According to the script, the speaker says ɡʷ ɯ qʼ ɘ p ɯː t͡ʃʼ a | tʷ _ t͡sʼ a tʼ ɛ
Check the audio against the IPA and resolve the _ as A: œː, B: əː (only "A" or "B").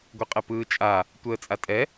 B